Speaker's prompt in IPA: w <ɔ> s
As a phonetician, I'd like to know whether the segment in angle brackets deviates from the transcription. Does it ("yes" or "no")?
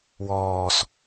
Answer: yes